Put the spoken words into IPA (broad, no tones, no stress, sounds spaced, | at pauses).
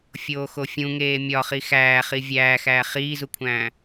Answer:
fʲ oː x o fʲ ũ ŋ eː mʲ ɒ χ i x æː χ i vʲ æː x æː χ iː z u kʷʰ æ̃ː